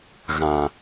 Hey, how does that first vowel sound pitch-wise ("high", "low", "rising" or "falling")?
low